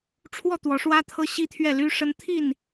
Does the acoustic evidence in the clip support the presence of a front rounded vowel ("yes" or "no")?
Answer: yes